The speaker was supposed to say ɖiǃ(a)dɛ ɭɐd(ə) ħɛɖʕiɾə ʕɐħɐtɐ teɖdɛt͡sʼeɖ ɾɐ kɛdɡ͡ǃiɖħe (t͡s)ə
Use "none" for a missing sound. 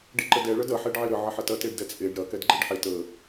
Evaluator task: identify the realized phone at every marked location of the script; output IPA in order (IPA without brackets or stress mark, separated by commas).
ə, ɐ, t